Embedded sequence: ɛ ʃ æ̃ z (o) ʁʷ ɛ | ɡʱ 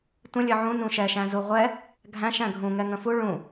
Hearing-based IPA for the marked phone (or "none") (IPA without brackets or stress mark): u